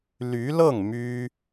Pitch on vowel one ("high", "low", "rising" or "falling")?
rising